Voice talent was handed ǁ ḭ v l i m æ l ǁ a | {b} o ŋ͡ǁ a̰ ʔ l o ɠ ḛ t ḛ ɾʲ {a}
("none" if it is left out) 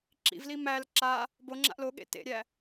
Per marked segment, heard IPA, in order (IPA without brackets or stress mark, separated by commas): b, æ